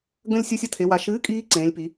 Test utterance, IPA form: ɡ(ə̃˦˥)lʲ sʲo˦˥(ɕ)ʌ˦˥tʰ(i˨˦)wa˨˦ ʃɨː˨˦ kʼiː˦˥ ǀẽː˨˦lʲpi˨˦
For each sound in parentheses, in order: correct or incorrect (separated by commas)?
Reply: correct, incorrect, incorrect